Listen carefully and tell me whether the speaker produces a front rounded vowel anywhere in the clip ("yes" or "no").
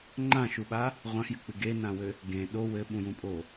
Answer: no